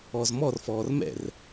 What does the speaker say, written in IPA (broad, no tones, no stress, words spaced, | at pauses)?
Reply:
ɔzmɔrfɔːr mɛ̰r